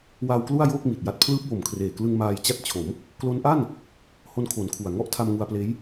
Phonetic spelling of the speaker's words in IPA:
w a˧ w k l u˥˩ a̯ j oː˥˩ k̚ m i˨˩ t̚ j a˦˥ t̚ pʰ l ɯː˦˥ p̚ w o˨˩ m kʰ r eː˨˩ k l ɯ˧ ŋ m aː˧ j t͡ɕ a˦˥ t̚ t͡ɕʰ o˩˦ m | k l o˦˥ n ʔ a˥˩ n | h o˦˥ n kʰ o˨˩ n kʰ u˨˩ a̯ ŋ ɔ˥˩ ʔ tʰ a˧ m ŋ u˧ a̯ p l eː˦˥ j

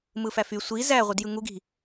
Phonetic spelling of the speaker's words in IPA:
m ɯ f æ f y sʷ i z æ ʁʷ ɯ d j ɯ ŋ u ɡ i̤

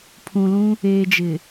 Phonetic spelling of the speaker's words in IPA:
pʰ ũ˨ l ũ˦ | eː˨ d͡ʒ ɪ˨

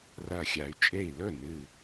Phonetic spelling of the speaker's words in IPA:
r ɐ˧˩ xʲ a˩˧ y̯ t͡ʃʼ e˥˩ i̯ l ɵ˥˩ n ɨ˧˩

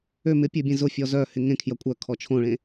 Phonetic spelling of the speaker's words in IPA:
ø m ɪ pʲ ø bʲ ẽ z ʊ fʲ ɔ z œ h ɪ ŋ ẽ kʰ j ɐ kʷʼ œ kʰ ɔ t͡ʃʰ õ ɭ ẽ

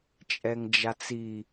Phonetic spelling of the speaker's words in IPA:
t͡ʃʼ ɛ ŋ d͡ʒ a t͡s i

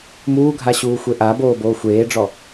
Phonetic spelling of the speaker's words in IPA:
m uː ɡʱ a ɕ uː xʷ e ʔ a b oː b oː xʷ eː ɖ͡ʐ ɔ

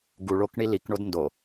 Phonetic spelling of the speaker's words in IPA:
ɡ u ɭ o k ɳ i l i k ɳ o d n d o

